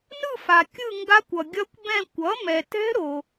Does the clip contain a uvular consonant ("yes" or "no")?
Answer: no